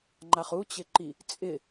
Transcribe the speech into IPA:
ŋ͡ǃaχut͡ɕɪǃi | t͡sʼɪ

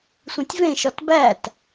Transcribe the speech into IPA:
sʷĩtʲvẽʃɒt bæt

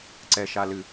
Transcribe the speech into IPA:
ǀɛʃalɨ

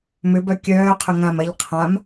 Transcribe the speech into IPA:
mʏbœ kʲœːqʰʏ ŋãm ɐʎ qʰãm

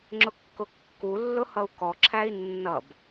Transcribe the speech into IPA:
ŋ͡ǁʊkːʊkːulːʊ hʌu̯kɔǁʰæi̯ nːʌb

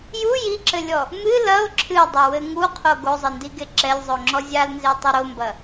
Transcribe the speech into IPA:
ju jiǁɘlʲɔ | mɨ lɐo̯ ǁʰɨdˤɐwɘ ŋuqʰo ɡozˤɘndiɡe ǁɛlʲzˤoŋ͡ǁɔ zʲalnzetˤu ɾombɐ

